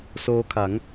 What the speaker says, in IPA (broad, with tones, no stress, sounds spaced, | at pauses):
s oː˦˥ kʰ a˩˦ ŋ